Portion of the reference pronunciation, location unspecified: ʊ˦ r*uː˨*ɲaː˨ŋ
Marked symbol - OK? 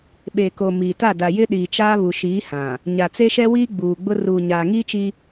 yes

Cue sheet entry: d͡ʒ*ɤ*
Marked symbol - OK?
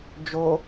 no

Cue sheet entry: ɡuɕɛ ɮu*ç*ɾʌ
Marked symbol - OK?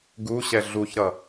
yes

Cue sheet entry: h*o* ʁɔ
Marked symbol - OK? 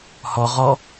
no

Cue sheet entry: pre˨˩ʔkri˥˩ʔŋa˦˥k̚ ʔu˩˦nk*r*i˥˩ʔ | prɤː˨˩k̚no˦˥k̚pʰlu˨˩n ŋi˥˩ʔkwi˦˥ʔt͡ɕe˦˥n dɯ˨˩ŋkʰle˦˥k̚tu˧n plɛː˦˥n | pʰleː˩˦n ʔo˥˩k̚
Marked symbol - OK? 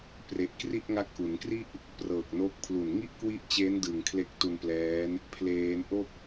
yes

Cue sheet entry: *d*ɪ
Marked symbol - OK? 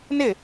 no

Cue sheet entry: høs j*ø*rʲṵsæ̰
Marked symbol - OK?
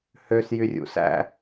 no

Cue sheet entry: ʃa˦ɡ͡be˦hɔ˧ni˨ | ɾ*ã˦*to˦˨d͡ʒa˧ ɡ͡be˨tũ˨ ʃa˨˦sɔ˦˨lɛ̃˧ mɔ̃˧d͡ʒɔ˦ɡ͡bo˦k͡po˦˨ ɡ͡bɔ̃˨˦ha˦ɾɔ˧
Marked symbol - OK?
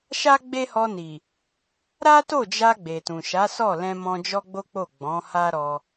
no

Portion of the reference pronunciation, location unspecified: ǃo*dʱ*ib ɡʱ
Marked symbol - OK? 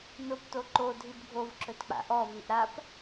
yes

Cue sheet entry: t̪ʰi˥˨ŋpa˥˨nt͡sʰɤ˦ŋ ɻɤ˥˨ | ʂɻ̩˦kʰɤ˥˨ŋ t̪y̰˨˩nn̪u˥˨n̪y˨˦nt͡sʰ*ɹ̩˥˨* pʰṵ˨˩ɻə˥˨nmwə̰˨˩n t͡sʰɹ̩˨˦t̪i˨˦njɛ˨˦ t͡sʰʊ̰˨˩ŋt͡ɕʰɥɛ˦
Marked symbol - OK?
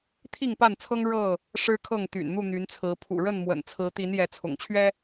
no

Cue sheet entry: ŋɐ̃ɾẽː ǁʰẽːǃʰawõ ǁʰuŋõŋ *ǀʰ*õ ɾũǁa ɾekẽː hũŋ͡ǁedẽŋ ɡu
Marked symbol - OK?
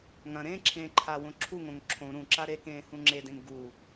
no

